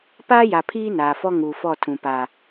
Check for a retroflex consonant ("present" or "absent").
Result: absent